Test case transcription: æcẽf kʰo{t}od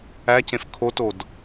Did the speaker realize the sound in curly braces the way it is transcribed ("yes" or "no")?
yes